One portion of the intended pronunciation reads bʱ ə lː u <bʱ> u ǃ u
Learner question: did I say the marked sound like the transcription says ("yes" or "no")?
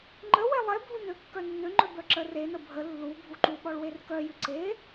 yes